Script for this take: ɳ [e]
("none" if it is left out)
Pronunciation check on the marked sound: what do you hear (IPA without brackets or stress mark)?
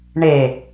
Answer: e